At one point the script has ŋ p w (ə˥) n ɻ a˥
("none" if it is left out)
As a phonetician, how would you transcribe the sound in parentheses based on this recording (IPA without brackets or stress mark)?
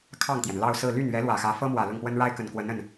ə˥